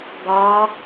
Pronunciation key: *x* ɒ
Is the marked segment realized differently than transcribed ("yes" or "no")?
yes